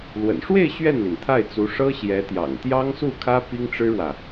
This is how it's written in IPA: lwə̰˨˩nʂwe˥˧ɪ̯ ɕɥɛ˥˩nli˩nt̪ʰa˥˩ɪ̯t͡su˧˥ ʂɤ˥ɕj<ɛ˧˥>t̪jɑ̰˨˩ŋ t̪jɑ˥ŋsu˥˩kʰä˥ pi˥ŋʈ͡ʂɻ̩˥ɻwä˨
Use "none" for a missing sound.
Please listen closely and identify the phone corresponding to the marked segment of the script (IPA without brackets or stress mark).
ɛ˧˥